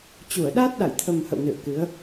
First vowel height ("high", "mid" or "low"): high